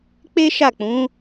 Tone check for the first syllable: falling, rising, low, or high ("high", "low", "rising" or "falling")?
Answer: high